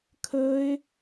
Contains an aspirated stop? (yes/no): yes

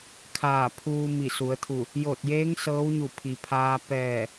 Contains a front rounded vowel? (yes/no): no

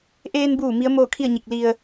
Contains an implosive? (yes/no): no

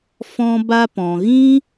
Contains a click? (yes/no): no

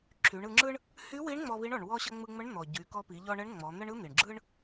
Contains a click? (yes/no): yes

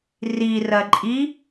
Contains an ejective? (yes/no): yes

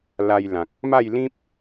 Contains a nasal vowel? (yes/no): yes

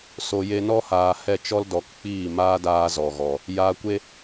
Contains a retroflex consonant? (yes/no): no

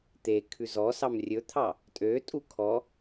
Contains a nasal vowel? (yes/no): no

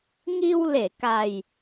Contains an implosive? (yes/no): no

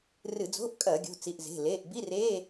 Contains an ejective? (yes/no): yes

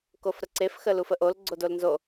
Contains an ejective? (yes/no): no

